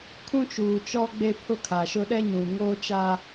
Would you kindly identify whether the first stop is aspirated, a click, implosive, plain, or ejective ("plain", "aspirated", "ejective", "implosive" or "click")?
aspirated